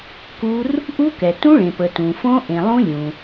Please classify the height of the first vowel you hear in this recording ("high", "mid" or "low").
high